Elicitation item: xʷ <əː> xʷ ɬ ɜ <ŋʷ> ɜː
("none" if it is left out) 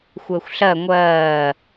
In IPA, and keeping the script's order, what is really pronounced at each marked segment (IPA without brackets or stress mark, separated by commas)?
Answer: əː, ŋʷ